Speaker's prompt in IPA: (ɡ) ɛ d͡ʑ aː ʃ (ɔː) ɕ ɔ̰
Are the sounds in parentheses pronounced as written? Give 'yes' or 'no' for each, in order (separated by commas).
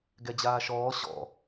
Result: yes, yes